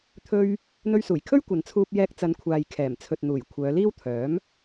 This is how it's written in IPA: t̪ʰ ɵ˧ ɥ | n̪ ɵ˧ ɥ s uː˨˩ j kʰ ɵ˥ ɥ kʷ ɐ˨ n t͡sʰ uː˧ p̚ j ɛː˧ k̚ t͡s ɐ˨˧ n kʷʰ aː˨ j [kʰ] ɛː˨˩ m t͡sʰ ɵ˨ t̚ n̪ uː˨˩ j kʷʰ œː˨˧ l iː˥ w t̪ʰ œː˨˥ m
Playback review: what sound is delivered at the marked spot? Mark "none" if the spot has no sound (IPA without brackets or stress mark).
kʰ